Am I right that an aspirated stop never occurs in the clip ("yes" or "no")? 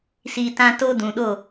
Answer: yes